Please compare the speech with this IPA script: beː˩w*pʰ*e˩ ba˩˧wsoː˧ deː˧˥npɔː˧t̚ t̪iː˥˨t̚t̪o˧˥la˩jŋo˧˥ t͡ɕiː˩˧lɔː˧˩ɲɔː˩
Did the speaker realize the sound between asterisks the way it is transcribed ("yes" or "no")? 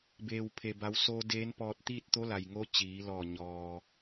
yes